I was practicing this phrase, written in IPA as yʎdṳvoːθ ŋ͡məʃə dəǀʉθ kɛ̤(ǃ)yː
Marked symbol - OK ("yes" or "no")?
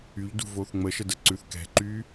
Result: yes